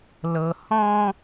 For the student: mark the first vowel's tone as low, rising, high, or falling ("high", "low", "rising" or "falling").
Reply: low